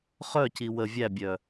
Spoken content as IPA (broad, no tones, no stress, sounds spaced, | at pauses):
χ œ c i w ə vʲ æ bʲ œ